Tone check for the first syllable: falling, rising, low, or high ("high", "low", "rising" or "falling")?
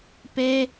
high